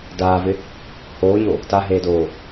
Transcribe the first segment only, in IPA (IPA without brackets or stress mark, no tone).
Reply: d